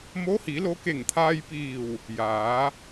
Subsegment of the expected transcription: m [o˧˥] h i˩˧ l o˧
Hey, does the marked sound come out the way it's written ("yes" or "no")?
yes